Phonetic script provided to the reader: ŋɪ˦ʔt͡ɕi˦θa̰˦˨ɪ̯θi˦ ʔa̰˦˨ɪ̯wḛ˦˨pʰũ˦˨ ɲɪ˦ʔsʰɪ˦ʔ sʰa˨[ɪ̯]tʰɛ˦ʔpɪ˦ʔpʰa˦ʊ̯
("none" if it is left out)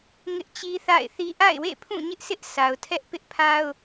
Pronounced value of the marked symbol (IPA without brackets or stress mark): ʊ̯